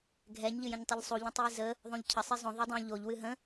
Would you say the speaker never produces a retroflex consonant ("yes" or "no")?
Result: yes